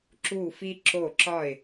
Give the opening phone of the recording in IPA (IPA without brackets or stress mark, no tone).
ǁ